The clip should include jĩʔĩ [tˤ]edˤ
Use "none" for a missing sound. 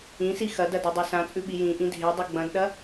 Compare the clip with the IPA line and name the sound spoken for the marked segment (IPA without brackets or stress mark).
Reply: dʱ